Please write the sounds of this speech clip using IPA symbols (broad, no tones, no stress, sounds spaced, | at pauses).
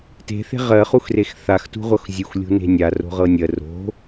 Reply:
t e̤ θ e̤ ʁ ɜ χ u x r e x θ a x t ṳ ʁʷ ɤ x zʲ u x lʲ ṳ n e̤ nʲ a r o̤ ʁ ɤ nʲ ɜ r o̤